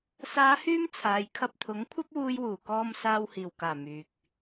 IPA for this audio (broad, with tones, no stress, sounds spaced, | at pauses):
s aː˨˧ h yː˧ m t͡sʰ aː˨ j kʰ ɐ˧ p̚ t̪ʰ ʊ˨˥ ŋ kʷʰ ɐ˥ p̚ w uː˧ j w uː˨˩ k ɔː˧ m s aː˧ w h iː˨˩ w k aː˨˩ m yː˨ k̚